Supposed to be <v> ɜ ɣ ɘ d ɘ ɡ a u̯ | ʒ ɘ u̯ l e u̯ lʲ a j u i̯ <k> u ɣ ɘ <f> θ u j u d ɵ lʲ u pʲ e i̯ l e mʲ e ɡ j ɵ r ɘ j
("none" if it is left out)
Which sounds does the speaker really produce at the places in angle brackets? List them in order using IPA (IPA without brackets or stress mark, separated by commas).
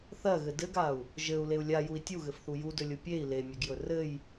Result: θ, tʲ, f